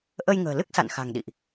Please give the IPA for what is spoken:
ʔ ə˧ j ŋ ə̤ː˨˩ l ɨ˦˥ k̚ s a̰˧˨ n x a̤˨˩ ŋ ɗ ḭ˧˨ ʔ

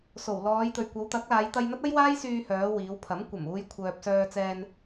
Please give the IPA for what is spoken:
s o˨˩ w l ɔː˨˧ j t̪ ɵ˨˩ ɥ kʷ ɐ˨˧ w t̪ ɐ˨˥ k̚ l aː˨˧ j t̪ ɐ˧ j n̪ ɐ˥ t̚ ɐ˥ j w aː˥ j s yː˧ h œː˨˧ w iː˨˧ w pʰ ɐ˨˥ m kʷ ɐ˨˩ m uː˧ j kʷʰ œː˨ p̚ s œː˧ t͡s ɛː˧ n

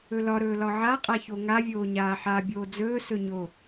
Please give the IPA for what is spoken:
ɵ l ɒ ɾ ɵː l ɒ ʕ a qʼ a ç o ŋ a vʲ oː ɲ aː ħ aː bʲ oː d͡z ɵː s ɵ ɲ o

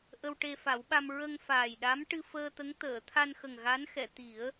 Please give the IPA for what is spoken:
ʔ ə˧ w ʈ e˧ f a˨˩˦ w ɓ a˧ m ɹ ə˧ ŋ f aː˨˩ j ɗ a˧˥ m ʈ ɨ˧ f əː˧ t̪ ə˧˥ ŋ t̪ əː˨˩˨ t̪ʰ a˧ n x ə˨˩ ŋ ɣ a˧˥ n x ɛ˨˩˨ t̪ i˨˩˦ ə̯

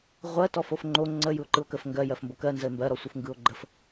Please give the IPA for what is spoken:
ʁʷ ɜ t ɔ f o f ŋ͡ǃ o ŋ͡ǀ ə j ɯ o̯ ǃ ɯ o̯ k ə f ŋ ɡ ɜ j ɜ f m b o k ɜ n z ə e̯ m b ɜ ɾ ɔ sʷ ɯ f ŋ ɡ ɯ o̯ ɡ͡ǃ ə f

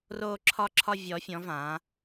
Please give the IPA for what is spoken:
r oː˧ ǁʰ ɒ˧ ǁʰ ɒ˧ vʲ ɔ˩˧ fʲ ɔ̃˩˧ v ã˩˧

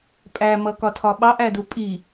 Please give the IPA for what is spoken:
pʼ æ m ʌ k ɒ tʰ ɒ ɓ ɑ ʔ æ d u pʼ i

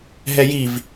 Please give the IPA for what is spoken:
ɦ ɛ j i v

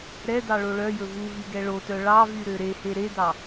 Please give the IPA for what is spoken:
ɾ ɛ d ɑ ɭ o ɭ œ j ɵ v u v y ɡ ɛ ɭ o t œ ɭ ɑ v y ɾ ø ɾ e h e ɾ e d ɑ

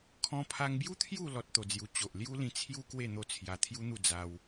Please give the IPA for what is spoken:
kʰ ɔ̃˧ pʰ a˧ ŋ b j u˦ t̪ʰ j u˥˧ l ɔ˦ t̚ t̪ o˧ d͡z j u˧ t͡ɕ o˨ ʔ l j u˦ l ĩ˧ t͡sʰ j u˦ k w e˥˧ n̪ o˥˧ t͡sʰ j a˧ t̪ʰ j u˦ n̪ u˥˧ d͡z a˧ w

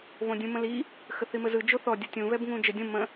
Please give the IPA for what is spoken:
β õ dʲ ũ m ə̃ l i | x ə θ i m ə z ɯ d͡ʒ o θ ɔ dʲ u tʲ ũ β ɛ b ŋ ũ d͡ʒ ə dʲ õ m ə̃

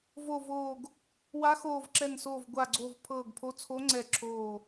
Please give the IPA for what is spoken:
v o˧˩ v oː˧˩ ɡ | w a˧˥ x oː˧˩ v ǁ ɛ˧˩ n s oː˧˩ v ɡʷ a˧˩ ɡ͡ǀ o˧˩ v pʰ ɤː˧˩ ɡ pʰ o˧˥ t͡sʰ o˧˥ ŋ͡ǀ ɛ˧˩ ǁʰ oː˧˩

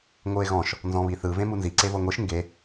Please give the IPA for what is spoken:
ŋʷ ɯ e̯ ɣ ɔ̃ ʃ | n z ɔ̃ β i θ ɯ v ẽ m u n z i ǀ e v ɤ ŋʷ i ʃ ŋ ɡ e

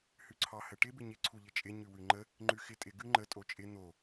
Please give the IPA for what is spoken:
h ʉ ǀʰ ɑ h ə ʈ ɪ b ɪ ɲ ɪ ǀʰ u ʎ ɪ t͡ʃʼ ɪ ɲ ʉ w ʉ ŋ͡ǃ ə | ŋ͡ǃ ʉ x ɪ tʼ ɪ ɡ ʉ ŋ͡ǃ ə tʼ o t͡ʃʼ ɪ n̪ o

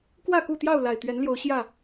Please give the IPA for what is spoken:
k w ä˥˨ k u˥˨ t̪ j ɑ˥˨ ʊ̯ l a˨˩ ɪ̯ t̪ ɥ ɛ˨˦ n l j o˨˦ ʊ̯ ɕ j ä˥˨

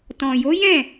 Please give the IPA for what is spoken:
t ɔ̃˨ j o˨˦ j ɛ̃˦˨

